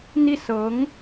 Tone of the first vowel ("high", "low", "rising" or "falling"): falling